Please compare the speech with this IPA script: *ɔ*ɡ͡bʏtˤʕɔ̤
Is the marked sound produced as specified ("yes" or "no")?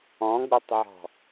no